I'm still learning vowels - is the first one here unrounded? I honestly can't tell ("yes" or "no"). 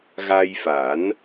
yes